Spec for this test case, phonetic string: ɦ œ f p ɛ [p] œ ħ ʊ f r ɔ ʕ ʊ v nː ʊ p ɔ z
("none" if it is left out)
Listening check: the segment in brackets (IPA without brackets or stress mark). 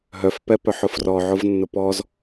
p